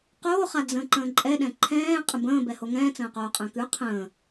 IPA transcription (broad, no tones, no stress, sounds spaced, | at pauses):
q oː χ a d͡z ə̃ː ǃ ə̃ː ǃʼ ɛ ɗ ɛ̃ ǃʰ ɛ̃ː qʼ ə̃ b ə̃ː b ɛ h o ŋ ɛ̃ː t͡s ə̃ː q oː qʼ ə̃ː k ʉ qʰ ə̃ː